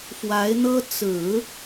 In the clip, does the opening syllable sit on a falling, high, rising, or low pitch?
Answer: rising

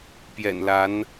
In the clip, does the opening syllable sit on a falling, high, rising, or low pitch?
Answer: low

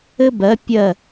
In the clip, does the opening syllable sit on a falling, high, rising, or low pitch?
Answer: high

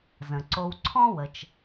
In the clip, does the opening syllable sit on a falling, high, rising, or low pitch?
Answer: low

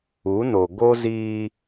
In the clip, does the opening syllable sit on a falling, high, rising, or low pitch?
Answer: rising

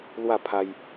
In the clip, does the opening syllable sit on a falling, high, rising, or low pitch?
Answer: falling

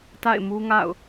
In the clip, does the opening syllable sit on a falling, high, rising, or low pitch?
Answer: falling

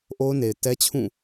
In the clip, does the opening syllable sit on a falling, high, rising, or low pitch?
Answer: high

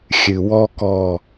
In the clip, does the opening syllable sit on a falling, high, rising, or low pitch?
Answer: low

